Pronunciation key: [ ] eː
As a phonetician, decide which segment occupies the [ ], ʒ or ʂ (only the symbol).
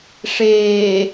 ʂ